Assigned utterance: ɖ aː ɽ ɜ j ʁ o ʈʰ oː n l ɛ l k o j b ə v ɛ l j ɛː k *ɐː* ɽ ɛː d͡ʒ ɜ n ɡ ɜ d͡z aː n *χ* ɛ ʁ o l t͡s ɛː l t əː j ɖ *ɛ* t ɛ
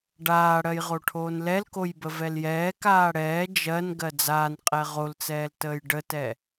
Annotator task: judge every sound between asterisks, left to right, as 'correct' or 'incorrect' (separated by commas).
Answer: incorrect, incorrect, incorrect